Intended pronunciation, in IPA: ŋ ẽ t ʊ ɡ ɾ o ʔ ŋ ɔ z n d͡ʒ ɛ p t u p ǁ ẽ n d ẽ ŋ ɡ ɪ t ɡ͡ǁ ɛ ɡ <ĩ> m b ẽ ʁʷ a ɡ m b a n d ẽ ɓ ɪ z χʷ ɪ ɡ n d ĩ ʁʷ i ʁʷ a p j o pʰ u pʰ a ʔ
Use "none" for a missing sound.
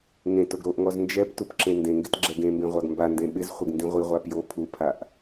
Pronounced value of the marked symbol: ẽ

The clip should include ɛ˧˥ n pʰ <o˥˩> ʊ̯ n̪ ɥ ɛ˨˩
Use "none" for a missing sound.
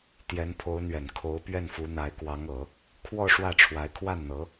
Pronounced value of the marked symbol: o˧˥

